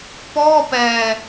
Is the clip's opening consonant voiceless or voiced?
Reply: voiceless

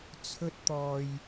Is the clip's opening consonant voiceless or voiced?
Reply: voiceless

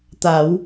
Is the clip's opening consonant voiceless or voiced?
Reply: voiceless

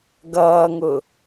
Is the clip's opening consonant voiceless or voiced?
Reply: voiced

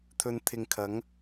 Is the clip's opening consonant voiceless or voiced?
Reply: voiceless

